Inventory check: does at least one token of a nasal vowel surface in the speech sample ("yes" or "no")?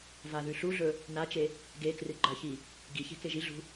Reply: no